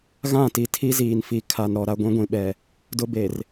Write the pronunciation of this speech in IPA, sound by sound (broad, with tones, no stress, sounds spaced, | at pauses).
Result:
ɣ ã˦˨ t i˨ tʰ i˦ z iː˨ n f i˨ kʰ a˨ n ɾ ɔ˨ ɾ a˦ ɡʷ ĩ˦ ɡʷ ĩ˨ ɓ ɛ˨ | d ʊ˦ b e˨ r